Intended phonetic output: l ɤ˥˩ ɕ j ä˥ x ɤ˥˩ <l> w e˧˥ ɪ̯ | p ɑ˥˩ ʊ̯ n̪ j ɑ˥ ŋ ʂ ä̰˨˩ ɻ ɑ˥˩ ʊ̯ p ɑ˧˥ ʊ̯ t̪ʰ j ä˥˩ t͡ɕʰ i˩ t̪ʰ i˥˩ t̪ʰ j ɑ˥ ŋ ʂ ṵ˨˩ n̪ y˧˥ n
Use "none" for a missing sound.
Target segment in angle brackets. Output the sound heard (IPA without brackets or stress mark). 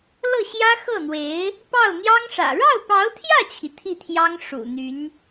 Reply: n̪